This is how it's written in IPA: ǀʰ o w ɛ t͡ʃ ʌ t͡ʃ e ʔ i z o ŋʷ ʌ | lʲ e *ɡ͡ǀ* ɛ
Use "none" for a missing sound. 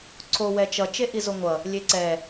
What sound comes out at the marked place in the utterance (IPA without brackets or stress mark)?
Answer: ǀ